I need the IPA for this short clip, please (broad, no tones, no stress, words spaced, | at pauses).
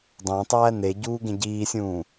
dˤẽtˤæː ne ɟuːɡẽɟiːsʲũː